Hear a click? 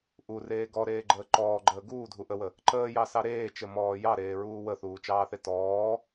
yes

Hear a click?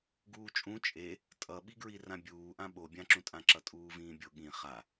yes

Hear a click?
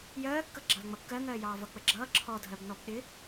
yes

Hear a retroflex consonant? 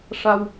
yes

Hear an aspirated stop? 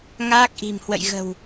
no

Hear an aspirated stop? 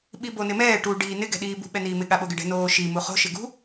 no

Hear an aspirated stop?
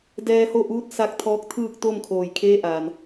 yes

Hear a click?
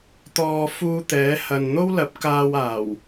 no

